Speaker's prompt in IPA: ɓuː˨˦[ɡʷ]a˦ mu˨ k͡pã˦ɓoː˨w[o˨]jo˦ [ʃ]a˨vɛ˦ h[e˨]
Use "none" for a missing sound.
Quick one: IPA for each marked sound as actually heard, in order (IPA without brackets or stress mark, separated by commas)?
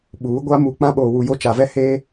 ɡʷ, u˨, t͡ʃ, e˦